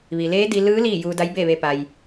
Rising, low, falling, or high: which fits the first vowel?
low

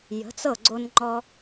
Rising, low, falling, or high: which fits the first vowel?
rising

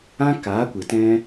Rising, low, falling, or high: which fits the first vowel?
high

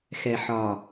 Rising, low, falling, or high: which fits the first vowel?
low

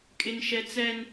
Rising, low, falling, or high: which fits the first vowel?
high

